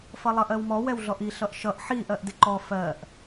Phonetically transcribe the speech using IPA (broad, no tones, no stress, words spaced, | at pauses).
fʌlˠʌʔɜwmɔ wɛwɮɔʔi ɬʌʔʃʌʔ ħi ʔɜʔdɪǃɔ fɜʔ